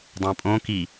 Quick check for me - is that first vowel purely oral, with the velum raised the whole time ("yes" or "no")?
no